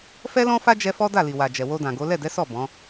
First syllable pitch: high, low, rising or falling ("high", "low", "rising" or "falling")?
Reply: high